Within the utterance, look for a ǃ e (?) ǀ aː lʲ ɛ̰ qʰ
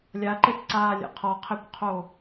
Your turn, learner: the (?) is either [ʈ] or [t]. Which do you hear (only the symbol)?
t